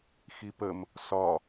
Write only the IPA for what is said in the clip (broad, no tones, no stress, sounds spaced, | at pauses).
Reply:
x i p ə m | s ɒ